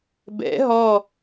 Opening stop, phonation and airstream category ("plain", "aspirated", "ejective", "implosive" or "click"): plain